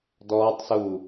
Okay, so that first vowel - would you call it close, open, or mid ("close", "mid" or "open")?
mid